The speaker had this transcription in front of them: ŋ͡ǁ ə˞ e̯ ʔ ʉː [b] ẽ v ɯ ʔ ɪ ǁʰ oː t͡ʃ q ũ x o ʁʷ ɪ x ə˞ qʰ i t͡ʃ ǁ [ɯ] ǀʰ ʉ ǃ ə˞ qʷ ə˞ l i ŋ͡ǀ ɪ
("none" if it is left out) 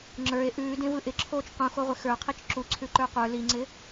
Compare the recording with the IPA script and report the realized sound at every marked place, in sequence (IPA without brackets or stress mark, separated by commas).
d, u